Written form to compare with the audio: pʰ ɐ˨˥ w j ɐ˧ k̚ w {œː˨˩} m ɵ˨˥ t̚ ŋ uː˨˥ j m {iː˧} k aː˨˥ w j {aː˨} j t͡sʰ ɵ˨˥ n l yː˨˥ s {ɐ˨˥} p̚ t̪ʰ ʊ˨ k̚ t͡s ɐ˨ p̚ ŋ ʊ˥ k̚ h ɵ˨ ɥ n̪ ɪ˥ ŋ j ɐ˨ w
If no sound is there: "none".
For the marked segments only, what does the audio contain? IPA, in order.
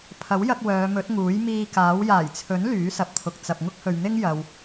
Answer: œː˨˧, iː˧, aː˨˩, ɐ˨˥

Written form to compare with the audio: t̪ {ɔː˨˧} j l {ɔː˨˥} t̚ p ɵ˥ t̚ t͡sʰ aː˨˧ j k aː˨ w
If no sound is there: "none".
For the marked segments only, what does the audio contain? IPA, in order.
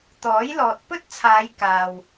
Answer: ɔː˨˥, ɔː˨

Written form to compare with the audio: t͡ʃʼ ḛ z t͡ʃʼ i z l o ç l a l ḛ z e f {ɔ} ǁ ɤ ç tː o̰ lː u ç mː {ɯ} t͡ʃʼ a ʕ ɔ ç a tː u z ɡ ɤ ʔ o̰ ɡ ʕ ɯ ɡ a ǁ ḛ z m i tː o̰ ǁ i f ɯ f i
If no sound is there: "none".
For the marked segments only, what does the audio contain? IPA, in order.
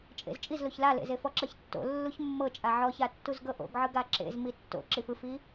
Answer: ɔ, ɤ

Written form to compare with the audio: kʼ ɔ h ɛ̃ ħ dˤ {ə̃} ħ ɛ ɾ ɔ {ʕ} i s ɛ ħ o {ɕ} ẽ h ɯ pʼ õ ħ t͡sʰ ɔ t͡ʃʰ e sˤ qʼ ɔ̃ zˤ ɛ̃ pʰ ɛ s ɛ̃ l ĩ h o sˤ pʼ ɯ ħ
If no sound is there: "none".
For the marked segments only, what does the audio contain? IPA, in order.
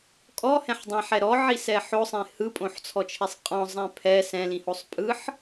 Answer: ɛ̃, ʕ, sˤ

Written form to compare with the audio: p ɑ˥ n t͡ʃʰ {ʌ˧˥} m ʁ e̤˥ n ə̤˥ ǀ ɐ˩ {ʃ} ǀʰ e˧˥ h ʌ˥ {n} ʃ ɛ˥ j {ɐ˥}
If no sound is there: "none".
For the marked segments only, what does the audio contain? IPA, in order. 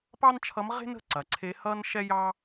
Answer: ʌ˧˥, none, n, ɑ˥

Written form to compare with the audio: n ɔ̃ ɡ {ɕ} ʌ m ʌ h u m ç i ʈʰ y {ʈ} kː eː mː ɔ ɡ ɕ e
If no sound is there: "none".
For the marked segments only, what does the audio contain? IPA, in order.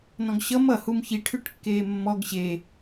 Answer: ɕ, ʈ

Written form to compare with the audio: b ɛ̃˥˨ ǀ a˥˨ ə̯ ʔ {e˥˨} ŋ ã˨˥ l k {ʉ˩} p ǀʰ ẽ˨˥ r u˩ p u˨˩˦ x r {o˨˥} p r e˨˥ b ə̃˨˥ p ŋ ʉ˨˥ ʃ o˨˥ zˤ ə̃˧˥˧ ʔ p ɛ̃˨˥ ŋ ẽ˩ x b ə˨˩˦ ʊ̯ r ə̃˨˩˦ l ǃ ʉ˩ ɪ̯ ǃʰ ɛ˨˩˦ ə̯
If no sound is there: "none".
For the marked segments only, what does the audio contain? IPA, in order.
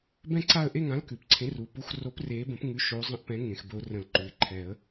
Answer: e˥˨, ʉ˩, o˨˥

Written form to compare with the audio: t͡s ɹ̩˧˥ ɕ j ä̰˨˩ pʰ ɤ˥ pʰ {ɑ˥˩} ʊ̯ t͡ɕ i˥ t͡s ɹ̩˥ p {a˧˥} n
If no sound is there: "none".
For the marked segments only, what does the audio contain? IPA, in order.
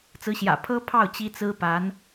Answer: ɑ˥˩, a˧˥

